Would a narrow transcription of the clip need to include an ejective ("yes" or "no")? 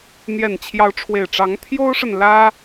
no